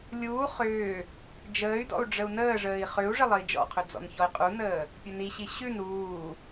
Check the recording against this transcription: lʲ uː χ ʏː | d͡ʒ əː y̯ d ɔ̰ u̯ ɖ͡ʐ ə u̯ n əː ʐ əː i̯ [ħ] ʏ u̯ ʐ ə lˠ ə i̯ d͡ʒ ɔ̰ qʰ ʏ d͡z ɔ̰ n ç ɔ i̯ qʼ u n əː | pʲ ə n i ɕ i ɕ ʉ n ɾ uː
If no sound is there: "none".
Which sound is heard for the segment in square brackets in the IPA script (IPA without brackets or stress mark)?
χ